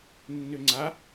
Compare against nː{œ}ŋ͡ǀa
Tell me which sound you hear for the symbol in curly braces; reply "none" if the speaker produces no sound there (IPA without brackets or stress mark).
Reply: ø